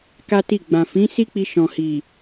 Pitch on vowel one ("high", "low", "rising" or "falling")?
high